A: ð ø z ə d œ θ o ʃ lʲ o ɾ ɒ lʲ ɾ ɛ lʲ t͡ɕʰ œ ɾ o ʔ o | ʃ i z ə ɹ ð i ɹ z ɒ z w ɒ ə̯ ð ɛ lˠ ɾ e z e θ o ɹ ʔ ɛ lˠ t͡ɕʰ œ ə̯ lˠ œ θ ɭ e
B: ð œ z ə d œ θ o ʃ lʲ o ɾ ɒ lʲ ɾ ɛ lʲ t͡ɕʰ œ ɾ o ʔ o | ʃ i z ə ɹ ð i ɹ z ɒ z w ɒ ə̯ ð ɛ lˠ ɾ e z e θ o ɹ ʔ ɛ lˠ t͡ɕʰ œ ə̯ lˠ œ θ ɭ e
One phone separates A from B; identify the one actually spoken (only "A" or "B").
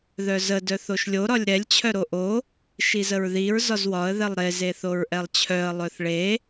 B